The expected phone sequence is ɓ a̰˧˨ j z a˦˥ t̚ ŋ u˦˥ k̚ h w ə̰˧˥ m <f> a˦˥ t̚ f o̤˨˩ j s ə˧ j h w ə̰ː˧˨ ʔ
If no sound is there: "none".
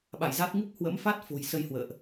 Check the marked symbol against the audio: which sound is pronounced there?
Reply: f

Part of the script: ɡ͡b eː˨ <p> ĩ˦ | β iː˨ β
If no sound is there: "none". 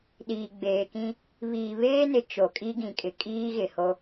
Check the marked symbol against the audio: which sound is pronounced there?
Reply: k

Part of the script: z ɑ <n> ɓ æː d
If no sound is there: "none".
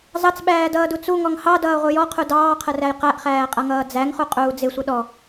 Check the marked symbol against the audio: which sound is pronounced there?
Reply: t͡s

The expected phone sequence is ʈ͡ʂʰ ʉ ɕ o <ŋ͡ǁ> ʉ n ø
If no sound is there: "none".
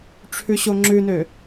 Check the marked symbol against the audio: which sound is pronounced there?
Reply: ŋ͡ǁ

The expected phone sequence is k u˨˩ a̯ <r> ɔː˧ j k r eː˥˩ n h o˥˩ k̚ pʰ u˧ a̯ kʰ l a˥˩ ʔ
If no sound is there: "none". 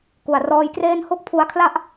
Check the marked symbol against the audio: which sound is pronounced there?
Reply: r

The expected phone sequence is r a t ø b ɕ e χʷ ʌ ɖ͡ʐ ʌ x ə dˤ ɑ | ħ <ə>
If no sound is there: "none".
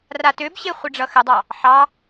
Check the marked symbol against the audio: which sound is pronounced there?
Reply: ɑ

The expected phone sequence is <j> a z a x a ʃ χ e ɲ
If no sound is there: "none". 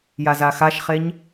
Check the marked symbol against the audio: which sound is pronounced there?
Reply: j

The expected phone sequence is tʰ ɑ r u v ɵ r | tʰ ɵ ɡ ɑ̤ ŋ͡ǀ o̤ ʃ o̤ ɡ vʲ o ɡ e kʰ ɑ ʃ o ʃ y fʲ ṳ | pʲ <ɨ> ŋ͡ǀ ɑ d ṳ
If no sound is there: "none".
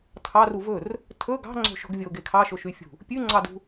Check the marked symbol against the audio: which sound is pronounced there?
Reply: ʉ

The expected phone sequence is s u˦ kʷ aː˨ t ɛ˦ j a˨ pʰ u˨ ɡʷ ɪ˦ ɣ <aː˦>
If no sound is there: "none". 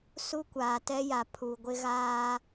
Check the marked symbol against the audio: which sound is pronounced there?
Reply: aː˦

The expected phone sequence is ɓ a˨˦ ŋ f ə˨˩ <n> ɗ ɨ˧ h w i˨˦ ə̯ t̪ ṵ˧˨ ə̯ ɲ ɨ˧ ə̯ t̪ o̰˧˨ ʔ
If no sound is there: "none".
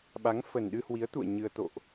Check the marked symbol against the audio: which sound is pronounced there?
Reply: n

